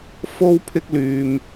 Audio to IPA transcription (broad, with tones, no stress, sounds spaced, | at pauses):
f o˥ w pʰ ɪ˥ k̚ l yː˧ m